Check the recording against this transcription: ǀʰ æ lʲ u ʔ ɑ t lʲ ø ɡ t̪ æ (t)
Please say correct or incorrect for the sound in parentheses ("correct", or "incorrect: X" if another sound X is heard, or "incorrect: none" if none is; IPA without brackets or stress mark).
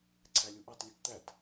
correct